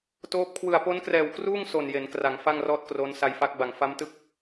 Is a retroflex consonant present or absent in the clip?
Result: absent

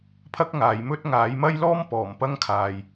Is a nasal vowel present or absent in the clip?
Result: absent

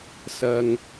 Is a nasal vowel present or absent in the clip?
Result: absent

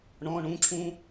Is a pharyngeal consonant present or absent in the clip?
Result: absent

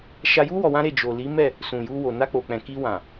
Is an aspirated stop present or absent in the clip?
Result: absent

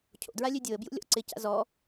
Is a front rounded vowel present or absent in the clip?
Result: present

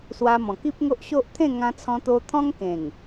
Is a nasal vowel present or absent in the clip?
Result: present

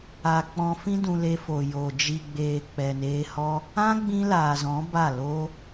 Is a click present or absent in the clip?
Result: absent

